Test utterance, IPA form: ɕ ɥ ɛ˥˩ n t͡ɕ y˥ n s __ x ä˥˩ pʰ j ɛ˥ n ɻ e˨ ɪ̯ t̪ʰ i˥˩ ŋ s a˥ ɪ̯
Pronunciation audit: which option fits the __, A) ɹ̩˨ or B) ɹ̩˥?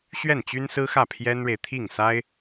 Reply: B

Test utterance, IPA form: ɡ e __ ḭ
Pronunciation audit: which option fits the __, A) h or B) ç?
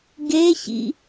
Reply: B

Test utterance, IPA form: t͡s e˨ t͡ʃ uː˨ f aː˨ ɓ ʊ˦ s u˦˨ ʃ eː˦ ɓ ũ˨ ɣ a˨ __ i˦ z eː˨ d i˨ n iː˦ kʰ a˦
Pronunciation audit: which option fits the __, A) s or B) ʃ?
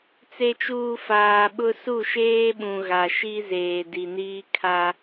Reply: B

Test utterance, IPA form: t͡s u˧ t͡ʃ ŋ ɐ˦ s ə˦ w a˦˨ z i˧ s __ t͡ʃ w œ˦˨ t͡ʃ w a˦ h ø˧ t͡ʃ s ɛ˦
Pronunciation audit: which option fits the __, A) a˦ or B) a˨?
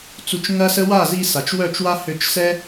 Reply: B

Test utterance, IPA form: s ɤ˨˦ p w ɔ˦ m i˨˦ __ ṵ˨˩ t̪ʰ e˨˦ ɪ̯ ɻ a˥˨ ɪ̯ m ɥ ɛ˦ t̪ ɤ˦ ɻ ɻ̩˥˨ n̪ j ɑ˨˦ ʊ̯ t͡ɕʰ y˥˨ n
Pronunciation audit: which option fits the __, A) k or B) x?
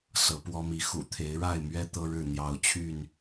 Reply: B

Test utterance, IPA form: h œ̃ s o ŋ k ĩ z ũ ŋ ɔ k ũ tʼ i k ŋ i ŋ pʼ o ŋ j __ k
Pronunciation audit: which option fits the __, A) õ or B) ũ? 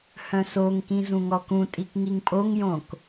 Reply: A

